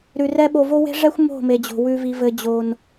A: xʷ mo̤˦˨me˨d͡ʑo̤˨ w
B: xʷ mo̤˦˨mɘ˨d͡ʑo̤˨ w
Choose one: A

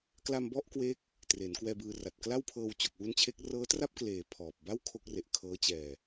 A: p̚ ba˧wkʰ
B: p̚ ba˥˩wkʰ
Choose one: B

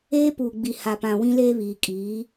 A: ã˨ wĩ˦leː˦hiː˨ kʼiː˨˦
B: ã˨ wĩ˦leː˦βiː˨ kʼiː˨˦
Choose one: B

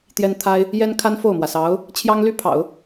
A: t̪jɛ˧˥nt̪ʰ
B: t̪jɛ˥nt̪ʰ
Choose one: B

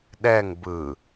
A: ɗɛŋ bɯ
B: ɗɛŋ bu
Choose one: A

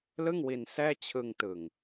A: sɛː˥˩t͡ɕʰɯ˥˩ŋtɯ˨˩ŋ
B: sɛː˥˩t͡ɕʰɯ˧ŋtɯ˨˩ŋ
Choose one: B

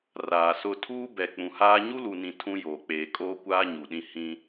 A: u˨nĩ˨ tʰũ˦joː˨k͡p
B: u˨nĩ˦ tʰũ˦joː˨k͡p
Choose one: A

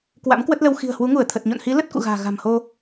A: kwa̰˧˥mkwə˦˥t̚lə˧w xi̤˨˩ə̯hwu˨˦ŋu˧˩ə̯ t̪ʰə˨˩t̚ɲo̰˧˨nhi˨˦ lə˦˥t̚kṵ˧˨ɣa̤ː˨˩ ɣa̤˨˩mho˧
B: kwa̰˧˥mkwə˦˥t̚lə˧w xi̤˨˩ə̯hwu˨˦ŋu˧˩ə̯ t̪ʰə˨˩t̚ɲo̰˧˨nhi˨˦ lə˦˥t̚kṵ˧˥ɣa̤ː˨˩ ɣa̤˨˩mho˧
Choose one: A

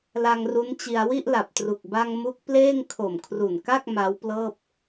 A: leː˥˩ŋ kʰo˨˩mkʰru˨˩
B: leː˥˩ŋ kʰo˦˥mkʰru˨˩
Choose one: A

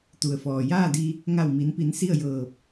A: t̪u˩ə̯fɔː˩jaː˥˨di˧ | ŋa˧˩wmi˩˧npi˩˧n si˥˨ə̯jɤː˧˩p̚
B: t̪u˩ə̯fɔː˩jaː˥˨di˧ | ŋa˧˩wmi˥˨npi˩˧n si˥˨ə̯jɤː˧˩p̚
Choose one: A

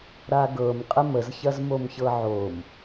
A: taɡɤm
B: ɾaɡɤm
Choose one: B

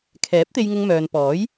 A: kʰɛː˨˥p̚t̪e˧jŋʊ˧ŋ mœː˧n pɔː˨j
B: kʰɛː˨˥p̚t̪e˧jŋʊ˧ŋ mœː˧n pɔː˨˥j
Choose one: B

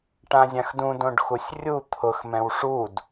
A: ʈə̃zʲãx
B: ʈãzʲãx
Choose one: B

